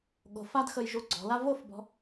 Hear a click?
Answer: yes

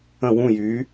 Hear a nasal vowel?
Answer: yes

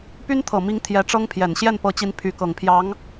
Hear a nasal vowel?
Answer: no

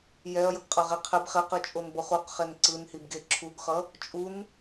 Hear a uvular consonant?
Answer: yes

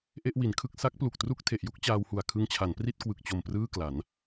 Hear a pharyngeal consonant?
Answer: no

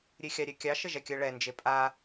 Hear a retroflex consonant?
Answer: yes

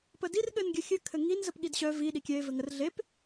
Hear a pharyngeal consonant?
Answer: no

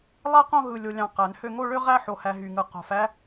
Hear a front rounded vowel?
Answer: yes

